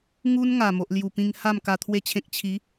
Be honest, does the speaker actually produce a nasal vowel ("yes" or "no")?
yes